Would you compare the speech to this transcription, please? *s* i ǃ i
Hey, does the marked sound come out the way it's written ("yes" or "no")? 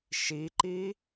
no